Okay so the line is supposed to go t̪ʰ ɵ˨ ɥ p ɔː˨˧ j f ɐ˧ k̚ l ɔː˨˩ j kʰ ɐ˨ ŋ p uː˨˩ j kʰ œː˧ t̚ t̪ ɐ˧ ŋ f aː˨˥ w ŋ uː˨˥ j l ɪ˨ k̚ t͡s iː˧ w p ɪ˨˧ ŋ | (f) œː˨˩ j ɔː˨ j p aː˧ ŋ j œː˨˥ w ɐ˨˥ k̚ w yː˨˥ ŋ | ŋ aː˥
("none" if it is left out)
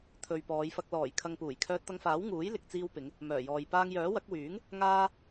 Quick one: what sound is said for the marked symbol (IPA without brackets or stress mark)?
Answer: m